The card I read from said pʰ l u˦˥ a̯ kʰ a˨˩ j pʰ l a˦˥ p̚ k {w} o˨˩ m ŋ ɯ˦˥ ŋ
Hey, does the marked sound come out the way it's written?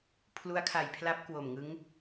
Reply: yes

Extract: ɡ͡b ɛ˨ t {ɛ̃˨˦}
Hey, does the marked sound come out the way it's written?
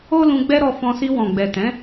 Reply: yes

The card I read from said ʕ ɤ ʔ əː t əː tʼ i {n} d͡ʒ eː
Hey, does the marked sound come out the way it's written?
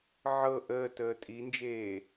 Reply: yes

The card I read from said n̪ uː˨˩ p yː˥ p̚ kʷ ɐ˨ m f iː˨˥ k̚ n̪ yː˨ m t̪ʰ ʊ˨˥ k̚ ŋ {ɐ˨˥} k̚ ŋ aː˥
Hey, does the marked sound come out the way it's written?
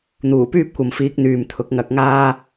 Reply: yes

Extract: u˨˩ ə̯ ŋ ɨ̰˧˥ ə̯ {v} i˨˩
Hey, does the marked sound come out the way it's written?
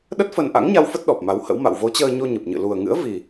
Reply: yes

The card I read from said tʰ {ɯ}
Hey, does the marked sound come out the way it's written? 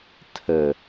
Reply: no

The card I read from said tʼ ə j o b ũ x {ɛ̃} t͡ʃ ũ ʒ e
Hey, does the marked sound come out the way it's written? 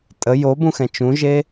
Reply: yes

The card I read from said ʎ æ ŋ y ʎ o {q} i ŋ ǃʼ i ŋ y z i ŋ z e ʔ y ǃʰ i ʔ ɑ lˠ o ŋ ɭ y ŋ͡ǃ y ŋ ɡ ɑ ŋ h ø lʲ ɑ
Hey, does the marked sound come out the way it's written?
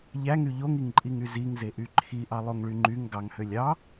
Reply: no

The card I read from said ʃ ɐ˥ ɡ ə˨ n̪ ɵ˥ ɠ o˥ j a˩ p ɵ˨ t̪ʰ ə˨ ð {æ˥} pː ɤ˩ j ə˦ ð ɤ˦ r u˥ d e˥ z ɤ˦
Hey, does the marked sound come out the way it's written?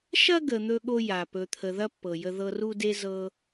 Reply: no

